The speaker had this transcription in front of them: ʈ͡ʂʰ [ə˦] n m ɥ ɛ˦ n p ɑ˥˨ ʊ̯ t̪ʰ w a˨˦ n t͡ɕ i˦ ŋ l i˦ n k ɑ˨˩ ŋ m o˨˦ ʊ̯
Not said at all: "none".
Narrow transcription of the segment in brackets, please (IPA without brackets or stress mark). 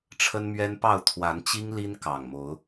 ə˦